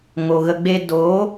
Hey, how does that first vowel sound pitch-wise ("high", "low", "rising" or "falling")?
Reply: low